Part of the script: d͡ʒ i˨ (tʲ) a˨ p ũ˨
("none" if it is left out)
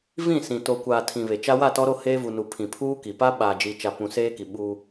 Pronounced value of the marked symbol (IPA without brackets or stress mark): t͡ʃ